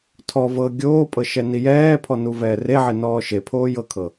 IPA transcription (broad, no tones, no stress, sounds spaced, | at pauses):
tʰ ɔ v ɤ ɡʲ oː pʼ ɤ ʃ ɛ n i j ɛː pʰ ɔ n u v ɛː r e ʕ e n ɔː ʃ e pʰ oː j ɤ kʰ ɤ